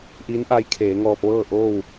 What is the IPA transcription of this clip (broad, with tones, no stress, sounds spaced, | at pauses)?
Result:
ʔ i˧˥ n ʔ a˧˥ j kʰ eː˩˧ ŋ ɔː˧ p̚ ʋ ɤː˥˨ ʔ oː˥˨ w